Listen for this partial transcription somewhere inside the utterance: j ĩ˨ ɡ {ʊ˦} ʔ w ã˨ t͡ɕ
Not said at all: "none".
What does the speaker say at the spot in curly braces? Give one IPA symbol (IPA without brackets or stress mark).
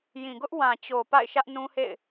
ʊ˦